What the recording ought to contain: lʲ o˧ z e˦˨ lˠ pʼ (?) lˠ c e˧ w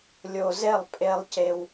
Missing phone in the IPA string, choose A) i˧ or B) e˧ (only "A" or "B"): B